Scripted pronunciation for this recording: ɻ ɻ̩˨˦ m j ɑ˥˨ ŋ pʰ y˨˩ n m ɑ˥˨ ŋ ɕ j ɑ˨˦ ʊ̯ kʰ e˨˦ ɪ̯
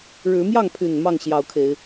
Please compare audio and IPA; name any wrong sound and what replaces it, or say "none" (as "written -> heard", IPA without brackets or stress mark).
none